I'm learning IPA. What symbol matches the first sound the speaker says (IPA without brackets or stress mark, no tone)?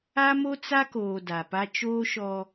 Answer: a